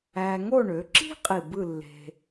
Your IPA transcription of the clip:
æː˧ ŋ o˥˧ ɳ ø˩˧ ǁ i̤˥ qʼ i˧˩ b ɯ˥˧ lː e̤˧

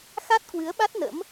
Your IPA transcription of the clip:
x a˦˥ t̚ k w ɨ˨˦ ə̯ ɓ a˦˥ t̚ n ə̰˧˥ m

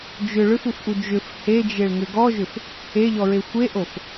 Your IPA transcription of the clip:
d͡ʒ ʏ ɭ ʏ f u f ʔ u d͡ʒ ʏ f h e d͡ʒ e ɭ ŋ ʏ ɡ ɔ ʒ ʏ f | e ʎ ɔ ɹ e xʷ e ʔ o f

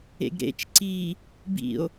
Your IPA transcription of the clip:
ḛ ɡ ɾ ḛ t͡ʃ ǀ i | b ḭ o̯

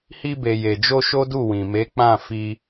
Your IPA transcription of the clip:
h i˧ b e˨ j e˨ d͡ʒ o˧ ʃ o˦ d u˦˨ w ĩ˨ m e˨˦ k͡p ã˦˨ f i˧

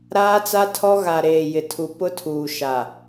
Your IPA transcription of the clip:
ɾ aː˦ t͡s a˦ tʰ ɔ˦ ɣ a˨ ɾ eː˨ j ɪ˨ tʰ u˨ p ʊ˦ tʰ uː˨ ʃ a˨

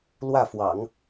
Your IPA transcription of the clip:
l w ä˥˩ f w ɑ̰˨˩˦ ŋ

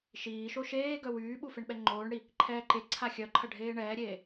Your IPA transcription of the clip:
ʃ iː ʃ o ʃ eː ɡ œ w yː ɓ u f e ɳ ɓ ɛ ŋ͡ǃ oː ɳ ɽ i | ǃʰ ɛː ǃ e ǀʰ a xʲ œ ǃʰ ɐ ɖʱ eː ɳ ɛː ɾʲ eː

